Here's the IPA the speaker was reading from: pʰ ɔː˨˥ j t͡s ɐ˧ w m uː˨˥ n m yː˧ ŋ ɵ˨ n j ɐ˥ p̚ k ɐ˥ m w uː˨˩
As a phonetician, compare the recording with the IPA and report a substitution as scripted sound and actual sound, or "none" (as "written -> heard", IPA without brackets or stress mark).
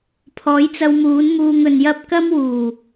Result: yː˧ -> uː˧